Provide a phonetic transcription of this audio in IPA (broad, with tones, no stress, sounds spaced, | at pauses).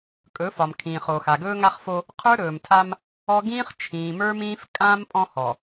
kʼ ɵː˨˦ f ɒ˨ m kʰ ĩː˨ χ o˨ x a˨ ɡ ɵː˦ ŋ a˦ χ f o˦ | qʰ ə˞˦ ɾ ɵː˨ m tʰ a˦ m | ɔ˦ ɡ ĩː˦ χ t͡ʃʰ ĩː˨ m ə˞˦ m ĩː˦ f kʼ ã˦ m pʼ ɔ̃˦ h ɔ˨